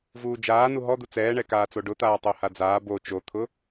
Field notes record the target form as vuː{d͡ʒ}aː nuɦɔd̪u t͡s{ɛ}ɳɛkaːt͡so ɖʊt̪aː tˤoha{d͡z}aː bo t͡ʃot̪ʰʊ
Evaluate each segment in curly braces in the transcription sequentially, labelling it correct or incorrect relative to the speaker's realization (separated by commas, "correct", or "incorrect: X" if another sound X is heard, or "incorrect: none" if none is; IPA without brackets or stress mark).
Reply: correct, incorrect: ɛː, correct